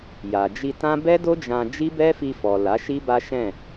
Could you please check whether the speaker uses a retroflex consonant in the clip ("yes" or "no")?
no